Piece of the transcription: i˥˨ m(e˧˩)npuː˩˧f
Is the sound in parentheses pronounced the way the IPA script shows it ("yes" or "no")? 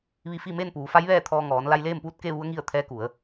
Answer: no